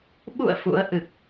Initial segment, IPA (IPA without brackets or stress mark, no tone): ɓ